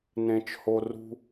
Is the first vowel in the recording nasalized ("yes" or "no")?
yes